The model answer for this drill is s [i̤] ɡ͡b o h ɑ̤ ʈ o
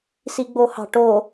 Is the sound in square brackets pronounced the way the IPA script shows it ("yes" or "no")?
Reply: no